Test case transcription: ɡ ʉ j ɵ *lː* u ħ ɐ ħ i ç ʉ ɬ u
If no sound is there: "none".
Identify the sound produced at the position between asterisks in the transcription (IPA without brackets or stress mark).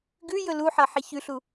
l